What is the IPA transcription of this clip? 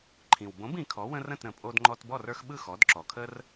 ǃʰĩ˩wbõ˨˥b ĩ˩˧kʰɔ˨˥ wə̃˦rə̃˥˨tɾə̃˩ pʼo˦dŋ͡ǃɔ˦t bɔ˥˨rə˞˦xɓɯ˥˨ xɔ˨˥d ǁɔ˩kʰə˦r

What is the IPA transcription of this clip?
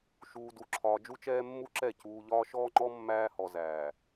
ʃuː˨du˨ ǁʰɒː˨d͡ʒu˦t͡ʃɛː˦mːu˦ ǁɛ˦˨cuː˨ʎɒː˦ ʃɔː˦ŋ͡ǃɔ˦ mːæː˦hɔ˨zæː˨

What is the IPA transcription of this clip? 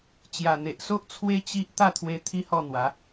t͡ɕja˨˩n̪e˨ʔso˦ʔ t͡sʰwe˦ t͡ɕi˦ʔ t̪a˥˧t̪ʰwe˧ t̪ʰi˦hɔ˥˧n̪wa˨˦

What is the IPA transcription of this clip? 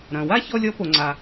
ɾɐ̃˩wa˥ çɔ˥lʲɔ˥ po˩ŋ͡ǀa˩

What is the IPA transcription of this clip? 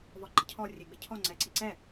vɔɡ͡ǃəcʰɔ rʲɛɡ͡bɪcʰɔ ŋ͡ǀɛǀiǀɛ

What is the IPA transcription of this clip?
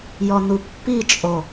jɔnupːit͡ʃʼo

